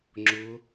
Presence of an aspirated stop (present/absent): absent